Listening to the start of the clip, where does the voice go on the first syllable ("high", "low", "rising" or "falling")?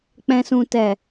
low